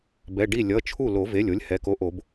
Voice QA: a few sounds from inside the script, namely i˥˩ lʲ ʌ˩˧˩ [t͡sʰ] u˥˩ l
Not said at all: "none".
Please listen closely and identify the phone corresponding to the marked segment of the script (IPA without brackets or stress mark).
t͡ʃʰ